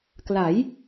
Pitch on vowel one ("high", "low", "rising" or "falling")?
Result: rising